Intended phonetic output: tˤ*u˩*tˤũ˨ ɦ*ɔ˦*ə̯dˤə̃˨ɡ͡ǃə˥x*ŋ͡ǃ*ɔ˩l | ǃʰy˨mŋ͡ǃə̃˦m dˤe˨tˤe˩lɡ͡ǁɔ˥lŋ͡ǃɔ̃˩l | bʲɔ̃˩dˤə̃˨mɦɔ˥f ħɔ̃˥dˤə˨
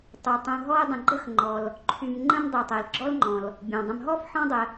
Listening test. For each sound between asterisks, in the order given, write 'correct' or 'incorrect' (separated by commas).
correct, correct, correct